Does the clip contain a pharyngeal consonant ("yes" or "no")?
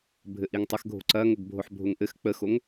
yes